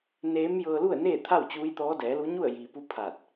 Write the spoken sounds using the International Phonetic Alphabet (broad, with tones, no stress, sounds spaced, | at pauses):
n eː˧˥ m j ɤː˧ l u˥˨ ə̯ n eː˥˨ t̪ʰ a˥˨ w t͡ɕ uː˧˥ j t̪ ɔː˧˥ d ɛː˩˧ l u˧˥ ɲ u˥˨ ə̯ j iː˩ p u˧˥ pʰ aː˧˩ t̚